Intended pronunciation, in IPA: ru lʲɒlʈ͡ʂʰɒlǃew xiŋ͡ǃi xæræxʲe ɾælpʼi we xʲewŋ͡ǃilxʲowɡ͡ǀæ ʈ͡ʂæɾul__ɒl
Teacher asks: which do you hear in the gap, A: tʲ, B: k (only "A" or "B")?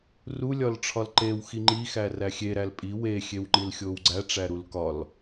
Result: B